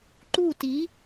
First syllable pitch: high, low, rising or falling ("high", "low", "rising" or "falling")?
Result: falling